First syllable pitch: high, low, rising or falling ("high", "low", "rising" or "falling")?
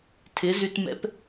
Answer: rising